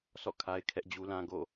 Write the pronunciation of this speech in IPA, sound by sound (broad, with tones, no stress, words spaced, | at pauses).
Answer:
sɔ̰˦˨kʰa˦ɪ̯ kʰɛ˦ʔd͡ʑu˦lã˦ ɡo̰˦˨